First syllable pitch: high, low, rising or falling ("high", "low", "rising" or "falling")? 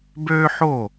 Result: high